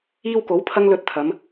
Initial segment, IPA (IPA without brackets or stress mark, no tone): iː